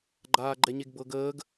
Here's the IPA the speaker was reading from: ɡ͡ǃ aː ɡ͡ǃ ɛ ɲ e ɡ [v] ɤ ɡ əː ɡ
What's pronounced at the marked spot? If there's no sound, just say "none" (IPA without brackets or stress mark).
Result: b